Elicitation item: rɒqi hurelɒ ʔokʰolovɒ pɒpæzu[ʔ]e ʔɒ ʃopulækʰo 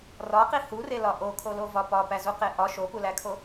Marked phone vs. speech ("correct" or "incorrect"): incorrect